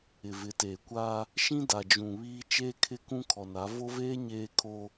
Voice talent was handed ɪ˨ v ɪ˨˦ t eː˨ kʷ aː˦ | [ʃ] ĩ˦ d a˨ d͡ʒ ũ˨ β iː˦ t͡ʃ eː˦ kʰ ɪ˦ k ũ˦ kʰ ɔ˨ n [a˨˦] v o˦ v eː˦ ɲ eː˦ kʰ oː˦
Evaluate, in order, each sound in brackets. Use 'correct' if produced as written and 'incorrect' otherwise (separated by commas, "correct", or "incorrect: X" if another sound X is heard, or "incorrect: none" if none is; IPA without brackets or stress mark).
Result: correct, correct